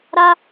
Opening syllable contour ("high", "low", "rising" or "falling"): high